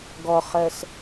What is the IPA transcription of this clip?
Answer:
ɡ ɔ χ ɜ s

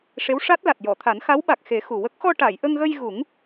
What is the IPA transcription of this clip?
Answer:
ʂ e˧˥ w ʂ a˦˥ t̚ l a˨˩ t̚ j ɔ˨˩˨ t̪ʰ a˨˩˦ n x a˧˥ w ɓ a˨˩ k̚ x e˨˩˦ x u˨˩ w ə˦˥ k̚ x ɔ˧ ʈ a˨˩˨ j ʔ ə˧ ŋ ɣ ə˧ j ɣ u˨˩˦ ŋ

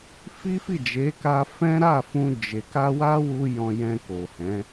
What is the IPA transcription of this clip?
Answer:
f i˦ f i˦˨ d͡ʒ e˨˦ k a˧ f ɛ̃˦ ɾ a˦˨ f ũ˧ d͡ʒ e˨ k a˧ w a˦ w u˧ j ɔ̃˧ j ɛ̃˧ k o˨ h ɛ̃˨˦

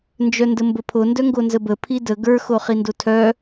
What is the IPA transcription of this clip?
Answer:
n d͡ʒ œ n d ə m b ə pʰ o n d œ ŋ ɡ o n z ə b ə pʰ i d ə ɡ ə˞ x o χ i n d o tʰ œ

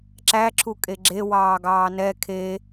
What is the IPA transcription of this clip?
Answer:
ǁ æ ǁʰ u kʼ e ɡ͡ǁ e w ɑː ɡ ɑː n ɛ kʰ e

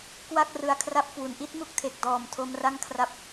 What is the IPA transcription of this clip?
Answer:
k w a˥˩ k̚ r ɯ˧ a̯ kʰ r a˥˩ p̚ k w u˩˦ n ʔ i˦˥ t̚ m u˦˥ k̚ tʰ e˨˩ k̚ d ɔː˨˩ m tʰ o˧ m r a˥˩ ŋ kʰ r a˦˥ p̚

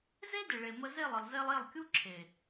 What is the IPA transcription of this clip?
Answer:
z e˦ d ɪ˨ ɭ e˨ m ə˧ z e˦˨ lˠ ə˨ lˠ z e˧ lˠ e˦˨ lˠ kʲ u˦ ǁʰ e˨

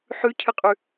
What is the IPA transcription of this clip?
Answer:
ħ ʉ cʰ ɨ qʼ ʉ

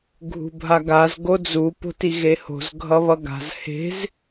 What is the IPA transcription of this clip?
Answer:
ɡʱ ṳ bʱ a ɡ a z ɡ o d͡z u p o̤ t i ɣ e h o̤ z ɡʱ ʌ β ʌ ɡ a̤ z h e̤ z

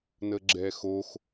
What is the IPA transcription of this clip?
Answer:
n ə ɡ͡ǁ ɛ x o x

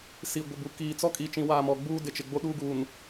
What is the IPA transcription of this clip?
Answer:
s i˨ ɡʷ ɪ˨ b u˨ k iː˨ t͡s ɔ˦ kʼ i˨ t͡ʃ ĩ˨ w aː˦˨ m ɔ˨ ɡ͡b uː˦ d ɪ˨ t͡ʃ ɪ˨ ɡ͡b o˦ ɗ uː˦ ɡ uː˨ n

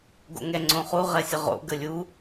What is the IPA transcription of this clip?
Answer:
ɡ o̰ ŋ ɛ ŋ͡ǀ õ χ u ʁ ɛ sʲ ə ʁ o̰ ɡ ə lʲ u

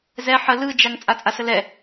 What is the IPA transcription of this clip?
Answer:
z ɛ ħ ə l ɯ d͡ʒ a ŋ t͡sʼ a t͡sʼ a s ə l ɛ

